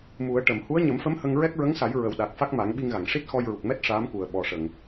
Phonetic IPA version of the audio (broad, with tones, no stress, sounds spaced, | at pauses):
m u˨˩˦ ə̯ ʈ ə˨˩˨ m h u˧˥ ə̯ ɲ ə˨˩˦ m f ə˧˥ m h ə˧ ŋ ɹ ɛ˦˥ k̚ ɹ ə˧˥ ŋ s a˨˩˦ j ɹ ə˨˩ w ɗ a˨˩ k̚ f a˦˥ k̚ m a˨˩˦ ŋ ɓ i˧ ŋ ɣ a˨˩˨ ŋ ʂ i˦˥ t̚ x ɔ˧ j ɹ u˨˩ k̚ m ɛ˦˥ t̚ ʂ aː˧˥ m k u˨˩ ə̯ ɓ ɔ˨˩ ʂ ə˨˩˨ ŋ